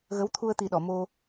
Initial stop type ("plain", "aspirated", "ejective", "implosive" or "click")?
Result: aspirated